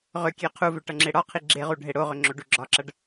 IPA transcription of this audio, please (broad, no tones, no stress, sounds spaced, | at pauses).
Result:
ʁ ʏ kʲ e qʰ u v ʏ ʈ ʌ ŋ͡ǁ e ɽ ɒ qʰ i ɡ͡ǁ e ʁ u ɖʱ e ɽ o ʁ ʏ ŋ͡ǁ o ɖ u ɡ͡ǁ ɒ ǁ ʌ ɖ